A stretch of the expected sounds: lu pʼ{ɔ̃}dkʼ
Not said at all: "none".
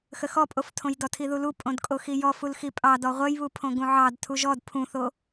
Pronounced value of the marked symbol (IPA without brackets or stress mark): õ